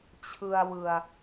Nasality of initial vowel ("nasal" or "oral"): oral